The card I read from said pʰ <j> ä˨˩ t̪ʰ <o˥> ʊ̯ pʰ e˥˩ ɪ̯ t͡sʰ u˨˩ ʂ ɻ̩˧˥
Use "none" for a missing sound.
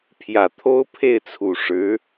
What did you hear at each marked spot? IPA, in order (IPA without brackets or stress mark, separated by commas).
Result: j, o˥